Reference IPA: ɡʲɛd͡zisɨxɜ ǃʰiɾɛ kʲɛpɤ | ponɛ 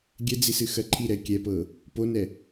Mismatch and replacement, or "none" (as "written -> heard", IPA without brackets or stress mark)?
none